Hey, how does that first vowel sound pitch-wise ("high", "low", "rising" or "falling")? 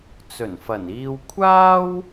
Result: low